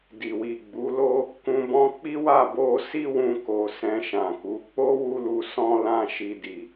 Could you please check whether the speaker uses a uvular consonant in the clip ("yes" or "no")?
no